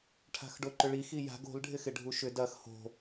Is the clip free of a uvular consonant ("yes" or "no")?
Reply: yes